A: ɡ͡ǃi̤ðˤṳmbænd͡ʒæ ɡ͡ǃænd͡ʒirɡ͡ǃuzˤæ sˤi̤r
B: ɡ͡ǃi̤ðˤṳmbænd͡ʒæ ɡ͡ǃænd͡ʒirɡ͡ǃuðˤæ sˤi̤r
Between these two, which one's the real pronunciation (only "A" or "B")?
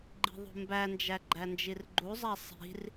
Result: A